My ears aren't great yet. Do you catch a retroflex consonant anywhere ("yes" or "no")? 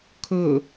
no